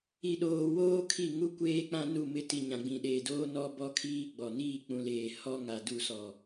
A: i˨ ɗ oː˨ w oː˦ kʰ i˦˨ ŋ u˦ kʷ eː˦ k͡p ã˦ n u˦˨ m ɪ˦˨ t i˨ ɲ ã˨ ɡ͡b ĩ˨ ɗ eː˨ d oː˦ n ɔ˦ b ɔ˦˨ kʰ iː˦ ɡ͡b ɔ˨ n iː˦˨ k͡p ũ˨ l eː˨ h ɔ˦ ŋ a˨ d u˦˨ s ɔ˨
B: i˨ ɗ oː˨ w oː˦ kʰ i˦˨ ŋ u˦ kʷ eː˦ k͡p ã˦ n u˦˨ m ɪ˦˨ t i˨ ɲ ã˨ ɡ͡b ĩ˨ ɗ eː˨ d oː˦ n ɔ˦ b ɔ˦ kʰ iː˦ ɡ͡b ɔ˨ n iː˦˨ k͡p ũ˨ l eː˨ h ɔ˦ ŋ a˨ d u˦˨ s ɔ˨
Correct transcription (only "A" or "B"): B